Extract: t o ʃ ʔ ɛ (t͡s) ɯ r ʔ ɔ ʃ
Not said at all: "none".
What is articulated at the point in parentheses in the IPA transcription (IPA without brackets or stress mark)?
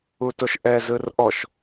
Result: z